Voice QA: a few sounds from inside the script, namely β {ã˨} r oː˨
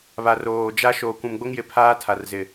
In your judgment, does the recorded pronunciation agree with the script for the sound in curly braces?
no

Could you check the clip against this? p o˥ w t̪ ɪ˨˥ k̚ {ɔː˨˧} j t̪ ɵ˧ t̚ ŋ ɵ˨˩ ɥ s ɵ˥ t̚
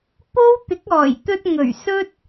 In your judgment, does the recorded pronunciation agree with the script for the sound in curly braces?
no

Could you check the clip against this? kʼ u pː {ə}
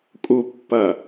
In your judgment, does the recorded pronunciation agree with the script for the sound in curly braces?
no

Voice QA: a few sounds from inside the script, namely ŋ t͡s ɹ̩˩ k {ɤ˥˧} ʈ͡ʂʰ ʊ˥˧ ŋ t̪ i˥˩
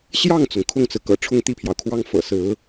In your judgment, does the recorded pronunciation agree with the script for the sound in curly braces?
no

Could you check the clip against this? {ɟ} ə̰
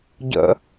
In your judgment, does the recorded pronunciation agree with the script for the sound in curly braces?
yes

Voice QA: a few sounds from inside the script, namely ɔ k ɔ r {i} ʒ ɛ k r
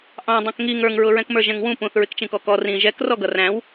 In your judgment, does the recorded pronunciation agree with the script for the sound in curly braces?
no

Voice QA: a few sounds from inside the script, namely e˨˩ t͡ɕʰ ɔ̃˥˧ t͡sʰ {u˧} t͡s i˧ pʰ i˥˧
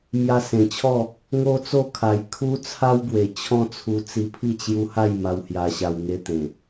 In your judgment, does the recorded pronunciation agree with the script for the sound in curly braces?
yes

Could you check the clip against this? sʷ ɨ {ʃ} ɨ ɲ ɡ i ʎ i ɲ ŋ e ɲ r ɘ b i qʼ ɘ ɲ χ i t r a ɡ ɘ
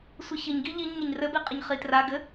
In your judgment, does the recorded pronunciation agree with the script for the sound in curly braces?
no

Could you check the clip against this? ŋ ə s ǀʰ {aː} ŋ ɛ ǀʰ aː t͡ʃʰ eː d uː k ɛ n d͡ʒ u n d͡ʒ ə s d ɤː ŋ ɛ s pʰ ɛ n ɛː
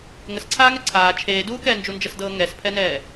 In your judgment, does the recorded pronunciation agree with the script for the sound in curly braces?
yes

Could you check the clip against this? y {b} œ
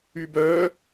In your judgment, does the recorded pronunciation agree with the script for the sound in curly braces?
yes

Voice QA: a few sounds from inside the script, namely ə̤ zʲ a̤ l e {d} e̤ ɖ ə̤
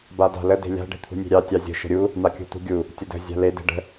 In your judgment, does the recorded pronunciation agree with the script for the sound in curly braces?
yes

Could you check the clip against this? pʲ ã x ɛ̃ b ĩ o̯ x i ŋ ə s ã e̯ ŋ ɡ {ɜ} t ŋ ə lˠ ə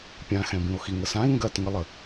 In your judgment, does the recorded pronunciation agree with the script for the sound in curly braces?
yes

